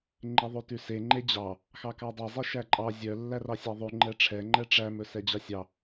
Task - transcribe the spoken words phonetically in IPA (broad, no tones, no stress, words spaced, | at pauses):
ŋ͡ǃeðˤʉtʉse ŋ͡ǃed͡ʑɑ | xɑkɑdˤe zˤeʃæǃʼɑ zʲœ lːærɑsʲɑðˤʉ ŋ͡ǃɛʈ͡ʂʰɛ ŋ͡ǃɛʈ͡ʂæ mɵsɛd͡ʑɑsʲɑ